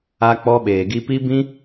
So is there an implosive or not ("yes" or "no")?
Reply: yes